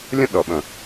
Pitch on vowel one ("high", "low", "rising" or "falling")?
high